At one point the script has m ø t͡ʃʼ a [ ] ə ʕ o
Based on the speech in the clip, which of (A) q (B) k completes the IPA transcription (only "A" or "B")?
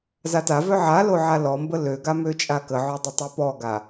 B